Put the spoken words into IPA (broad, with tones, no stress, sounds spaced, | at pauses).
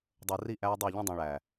dˤ əː˨ r i˦˨ ʔ æː˦ dˤ ʌː˦˨ ʎ ĩ˦ dˤ ĩ˨ ɭ æ˨